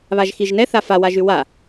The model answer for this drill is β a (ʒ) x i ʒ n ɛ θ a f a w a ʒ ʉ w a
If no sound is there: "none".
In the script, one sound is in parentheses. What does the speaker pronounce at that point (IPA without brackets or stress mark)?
ʒ